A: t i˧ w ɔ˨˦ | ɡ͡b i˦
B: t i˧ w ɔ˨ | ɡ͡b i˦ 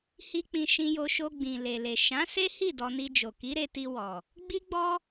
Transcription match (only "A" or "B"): B